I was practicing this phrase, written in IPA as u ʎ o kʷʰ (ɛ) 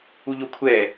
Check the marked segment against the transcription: correct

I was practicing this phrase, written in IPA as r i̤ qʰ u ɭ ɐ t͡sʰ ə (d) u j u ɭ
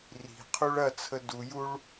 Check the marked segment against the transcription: correct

